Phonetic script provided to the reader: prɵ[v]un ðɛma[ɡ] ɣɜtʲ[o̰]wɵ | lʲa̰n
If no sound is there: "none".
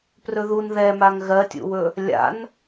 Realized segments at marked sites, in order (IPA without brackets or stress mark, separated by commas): ð, ŋ, ṵ